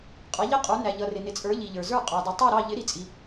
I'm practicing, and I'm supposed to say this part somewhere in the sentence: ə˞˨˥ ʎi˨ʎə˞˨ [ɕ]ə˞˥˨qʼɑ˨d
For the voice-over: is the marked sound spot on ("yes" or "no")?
no